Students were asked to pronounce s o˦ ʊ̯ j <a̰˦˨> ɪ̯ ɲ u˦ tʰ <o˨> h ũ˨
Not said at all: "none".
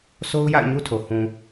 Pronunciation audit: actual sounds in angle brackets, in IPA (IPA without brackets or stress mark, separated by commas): a̰˦˨, o˨